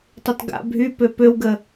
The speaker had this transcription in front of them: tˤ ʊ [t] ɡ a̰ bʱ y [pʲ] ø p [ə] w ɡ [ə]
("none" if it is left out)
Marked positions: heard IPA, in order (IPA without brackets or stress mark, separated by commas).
t, p, ø, ə